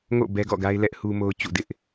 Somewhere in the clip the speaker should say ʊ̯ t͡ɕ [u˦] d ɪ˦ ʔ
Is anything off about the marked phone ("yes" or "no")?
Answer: yes